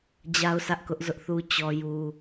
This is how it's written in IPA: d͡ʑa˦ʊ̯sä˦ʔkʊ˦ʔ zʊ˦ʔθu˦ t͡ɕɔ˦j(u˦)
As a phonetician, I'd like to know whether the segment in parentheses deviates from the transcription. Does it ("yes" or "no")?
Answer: no